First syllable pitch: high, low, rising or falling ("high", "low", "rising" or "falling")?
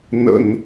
low